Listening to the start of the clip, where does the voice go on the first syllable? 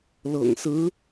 low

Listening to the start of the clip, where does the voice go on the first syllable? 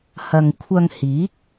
low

